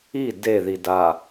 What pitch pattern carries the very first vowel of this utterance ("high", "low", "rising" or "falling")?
falling